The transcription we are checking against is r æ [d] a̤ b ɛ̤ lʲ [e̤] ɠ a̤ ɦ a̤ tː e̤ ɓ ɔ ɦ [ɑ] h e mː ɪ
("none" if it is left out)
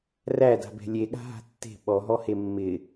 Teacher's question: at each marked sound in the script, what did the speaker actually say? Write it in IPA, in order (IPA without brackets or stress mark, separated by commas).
d, e, ɔ